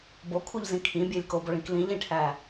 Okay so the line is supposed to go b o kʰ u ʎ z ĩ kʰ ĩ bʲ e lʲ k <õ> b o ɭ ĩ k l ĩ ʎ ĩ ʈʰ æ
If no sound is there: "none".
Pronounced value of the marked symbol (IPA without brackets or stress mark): o